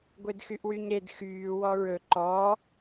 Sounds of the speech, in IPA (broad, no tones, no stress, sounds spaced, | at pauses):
ɡʷ e d x y ʔ w y ɲ ɾ e d x yː w ɔ ɹ ɵ ǃ ɔ